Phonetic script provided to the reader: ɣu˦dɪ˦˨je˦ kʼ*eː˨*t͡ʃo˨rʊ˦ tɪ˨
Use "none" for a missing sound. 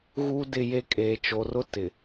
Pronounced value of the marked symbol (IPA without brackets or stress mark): eː˨